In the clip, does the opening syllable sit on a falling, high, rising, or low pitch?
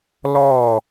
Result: falling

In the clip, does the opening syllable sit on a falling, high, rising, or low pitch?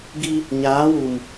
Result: high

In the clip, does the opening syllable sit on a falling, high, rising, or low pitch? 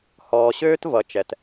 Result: low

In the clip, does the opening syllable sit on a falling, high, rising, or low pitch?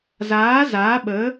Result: rising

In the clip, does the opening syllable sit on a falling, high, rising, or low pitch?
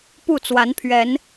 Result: falling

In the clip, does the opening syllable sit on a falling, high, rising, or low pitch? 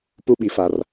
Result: high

